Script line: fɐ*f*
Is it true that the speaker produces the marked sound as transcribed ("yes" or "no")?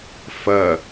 no